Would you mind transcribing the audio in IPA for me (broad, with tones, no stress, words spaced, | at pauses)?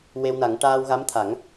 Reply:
we˧wna˨˩˦ŋ ʈaː˧wɣa˧˥mt̪ʰa˨˩˦ŋ